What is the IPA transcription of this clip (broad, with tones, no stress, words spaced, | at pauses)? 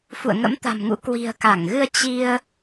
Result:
fṵ˧˨ə̯ŋə̰˧˥mt̪a̤˨˩mŋṵ˧˥ kwi̤˨˩ə̯ka˧˩ŋɣɨ˧ə̯ t͡ɕi˧ə̯